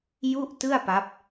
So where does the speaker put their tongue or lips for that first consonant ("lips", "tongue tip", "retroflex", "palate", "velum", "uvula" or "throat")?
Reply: palate